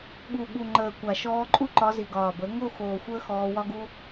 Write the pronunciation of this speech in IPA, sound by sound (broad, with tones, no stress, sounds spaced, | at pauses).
ɠ u˨ ɠ u˨ ŋ͡ǃ əː˨ kʷ a˨ ʃ ɔː˧ ǃʼ u˦ ǃ ɒ˧ z i˨ ɡ ɒː˨ b ə˨˦ ŋ o˦˨ x oː˨ xʷ əː˦ x ɔː˧ w ɒ˦ ɡ u˦